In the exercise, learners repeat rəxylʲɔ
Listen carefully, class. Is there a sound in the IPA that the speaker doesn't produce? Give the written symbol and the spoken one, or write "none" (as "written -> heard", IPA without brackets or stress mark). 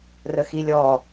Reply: y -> i